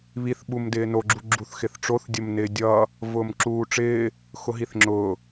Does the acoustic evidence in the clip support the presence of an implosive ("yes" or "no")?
yes